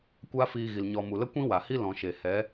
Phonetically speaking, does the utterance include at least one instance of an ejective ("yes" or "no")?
no